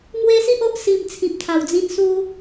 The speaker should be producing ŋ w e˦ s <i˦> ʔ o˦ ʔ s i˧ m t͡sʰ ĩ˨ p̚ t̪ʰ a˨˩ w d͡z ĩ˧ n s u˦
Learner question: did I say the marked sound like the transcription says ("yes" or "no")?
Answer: yes